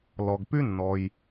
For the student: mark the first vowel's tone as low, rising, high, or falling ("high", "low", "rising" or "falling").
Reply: low